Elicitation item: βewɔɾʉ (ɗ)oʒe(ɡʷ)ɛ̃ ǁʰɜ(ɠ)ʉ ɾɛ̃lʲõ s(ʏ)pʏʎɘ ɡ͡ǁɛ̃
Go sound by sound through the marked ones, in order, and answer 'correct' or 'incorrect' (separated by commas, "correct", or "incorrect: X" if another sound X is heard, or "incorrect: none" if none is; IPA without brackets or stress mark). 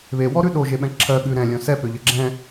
correct, incorrect: ɓ, correct, incorrect: ɛ